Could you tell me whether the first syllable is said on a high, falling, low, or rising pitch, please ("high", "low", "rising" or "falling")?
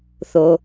low